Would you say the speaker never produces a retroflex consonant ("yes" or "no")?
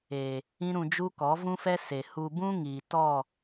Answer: yes